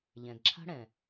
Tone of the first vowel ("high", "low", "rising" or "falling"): low